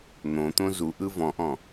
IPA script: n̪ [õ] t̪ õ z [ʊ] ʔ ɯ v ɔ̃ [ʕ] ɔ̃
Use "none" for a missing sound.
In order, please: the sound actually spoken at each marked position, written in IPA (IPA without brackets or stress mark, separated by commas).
õ, u, ʔ